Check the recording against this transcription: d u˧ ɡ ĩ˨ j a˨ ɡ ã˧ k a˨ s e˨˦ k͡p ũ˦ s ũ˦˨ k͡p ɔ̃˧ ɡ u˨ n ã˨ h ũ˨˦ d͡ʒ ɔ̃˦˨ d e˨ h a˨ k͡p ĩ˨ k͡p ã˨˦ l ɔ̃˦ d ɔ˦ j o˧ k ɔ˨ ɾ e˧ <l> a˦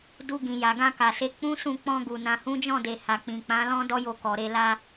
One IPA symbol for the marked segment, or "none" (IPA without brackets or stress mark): l